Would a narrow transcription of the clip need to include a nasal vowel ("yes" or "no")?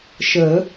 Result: no